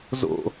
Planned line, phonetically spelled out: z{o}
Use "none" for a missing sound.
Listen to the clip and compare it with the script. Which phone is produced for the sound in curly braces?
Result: o̰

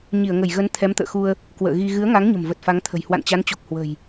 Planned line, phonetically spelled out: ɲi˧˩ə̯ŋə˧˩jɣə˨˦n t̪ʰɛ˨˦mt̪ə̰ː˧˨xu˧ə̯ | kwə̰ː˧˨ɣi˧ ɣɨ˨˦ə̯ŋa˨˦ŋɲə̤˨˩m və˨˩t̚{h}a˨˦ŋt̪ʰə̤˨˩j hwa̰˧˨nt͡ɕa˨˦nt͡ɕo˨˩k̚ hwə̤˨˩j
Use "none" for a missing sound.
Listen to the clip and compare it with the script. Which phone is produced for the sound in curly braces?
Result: f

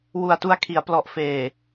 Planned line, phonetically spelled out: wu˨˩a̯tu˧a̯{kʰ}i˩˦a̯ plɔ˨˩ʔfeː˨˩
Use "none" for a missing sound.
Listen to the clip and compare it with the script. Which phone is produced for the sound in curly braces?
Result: kʰ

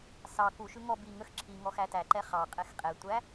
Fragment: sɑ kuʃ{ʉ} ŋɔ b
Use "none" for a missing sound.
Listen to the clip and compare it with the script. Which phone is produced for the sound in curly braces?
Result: ʉ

